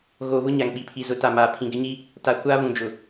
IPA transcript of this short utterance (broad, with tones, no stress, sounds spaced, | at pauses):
ɣ oː˨ β ʊ˦ ɲ a˨ ŋ ɓ i˨ pʰ i˨ z ʊ˨˦ t a˨ m aː˨ pʰ ĩ˨ ɡ ɪ˦ ɲ i˦ | t a˨ kʷ aː˦ β ũ˨ d͡ʒ ʊ˨